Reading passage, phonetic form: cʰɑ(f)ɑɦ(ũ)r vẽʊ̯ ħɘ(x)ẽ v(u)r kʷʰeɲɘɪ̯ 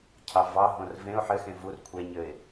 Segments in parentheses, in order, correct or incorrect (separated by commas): incorrect, incorrect, correct, correct